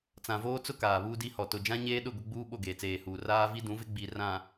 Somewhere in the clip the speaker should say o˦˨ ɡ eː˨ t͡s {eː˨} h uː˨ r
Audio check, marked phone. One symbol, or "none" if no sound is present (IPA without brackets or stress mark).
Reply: eː˨